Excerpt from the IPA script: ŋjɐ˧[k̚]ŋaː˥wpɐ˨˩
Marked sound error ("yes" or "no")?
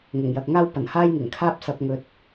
no